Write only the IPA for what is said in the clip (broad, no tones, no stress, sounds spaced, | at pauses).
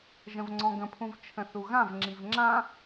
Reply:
ʒ ə̃ v ŋ͡ǀ ɔ̃ ɡ ə̃ pʰ ũ v t͡ʃʰ ə̃ θ u ɣ ã v ŋ͡ǁ i v ŋ͡ǁ ã